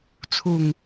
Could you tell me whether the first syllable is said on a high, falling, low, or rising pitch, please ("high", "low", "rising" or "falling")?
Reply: low